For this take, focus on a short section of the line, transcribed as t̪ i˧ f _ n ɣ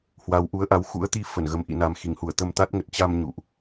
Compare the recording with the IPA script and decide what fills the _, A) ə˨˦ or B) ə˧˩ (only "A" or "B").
B